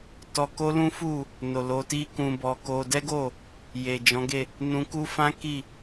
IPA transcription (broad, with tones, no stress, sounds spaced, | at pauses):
t ɔ˧ k o˦ l ũ˦ f u˦˨ | n o˨ l o˨˦ t i˦ k ũ˧ b ɔ˧ k o˧ d ɛ˦ ɡ o˦˨ | j e˨ d͡ʒ ɔ̃˨˦ ɡ e˦˨ | n ũ˧ k u˦ f ã˦ k i˦˨